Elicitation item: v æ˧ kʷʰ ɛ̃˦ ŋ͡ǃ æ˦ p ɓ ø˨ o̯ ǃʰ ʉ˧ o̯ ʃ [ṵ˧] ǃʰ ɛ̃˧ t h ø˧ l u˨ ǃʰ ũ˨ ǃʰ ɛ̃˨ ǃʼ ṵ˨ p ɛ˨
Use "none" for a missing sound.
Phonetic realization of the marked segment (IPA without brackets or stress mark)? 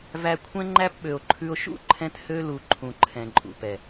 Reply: ṵ˦